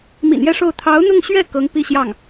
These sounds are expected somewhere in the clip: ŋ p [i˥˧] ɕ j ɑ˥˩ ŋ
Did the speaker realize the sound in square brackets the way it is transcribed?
yes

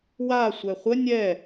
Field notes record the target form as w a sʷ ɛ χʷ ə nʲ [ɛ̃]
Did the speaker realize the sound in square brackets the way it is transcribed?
no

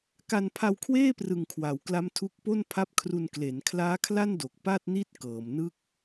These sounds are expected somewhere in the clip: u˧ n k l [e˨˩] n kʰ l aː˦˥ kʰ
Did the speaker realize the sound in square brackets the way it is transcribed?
no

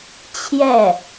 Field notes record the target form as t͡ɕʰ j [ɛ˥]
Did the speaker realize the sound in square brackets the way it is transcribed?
no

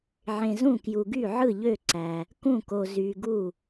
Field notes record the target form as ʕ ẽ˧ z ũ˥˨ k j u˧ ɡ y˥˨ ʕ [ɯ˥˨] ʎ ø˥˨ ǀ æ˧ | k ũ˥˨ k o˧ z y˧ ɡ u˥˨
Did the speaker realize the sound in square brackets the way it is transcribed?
yes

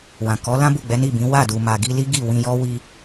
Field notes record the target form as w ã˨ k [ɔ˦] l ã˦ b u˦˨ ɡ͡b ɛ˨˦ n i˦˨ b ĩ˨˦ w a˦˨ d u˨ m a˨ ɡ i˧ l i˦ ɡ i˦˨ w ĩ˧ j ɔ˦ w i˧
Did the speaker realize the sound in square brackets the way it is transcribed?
no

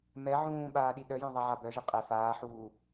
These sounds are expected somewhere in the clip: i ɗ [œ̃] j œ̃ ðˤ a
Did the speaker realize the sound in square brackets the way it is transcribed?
no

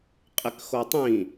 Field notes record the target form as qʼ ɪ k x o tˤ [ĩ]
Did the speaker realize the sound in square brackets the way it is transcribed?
yes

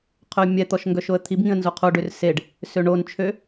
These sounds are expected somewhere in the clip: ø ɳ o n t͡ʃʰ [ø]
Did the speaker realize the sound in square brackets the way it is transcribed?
yes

